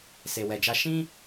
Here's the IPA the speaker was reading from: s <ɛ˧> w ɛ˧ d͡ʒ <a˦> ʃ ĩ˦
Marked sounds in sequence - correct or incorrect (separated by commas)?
incorrect, correct